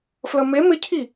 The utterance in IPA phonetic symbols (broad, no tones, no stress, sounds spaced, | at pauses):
f l ə m e m ɪ cʰ i